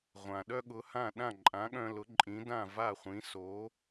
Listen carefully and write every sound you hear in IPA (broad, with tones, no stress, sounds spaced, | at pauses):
ʁʷ ã˩ ɗ œ˥ ɠ ʊ˩˥ h ã˥˩ ɗ ã˥˩ ǃʼ ã˩˥ ɠ œ̃˧ l ʊ˩˥ ǃʼ ĩ˩˥ d ã˥˩ v a˥˩ χʷ ĩ˩˥ s o˩˥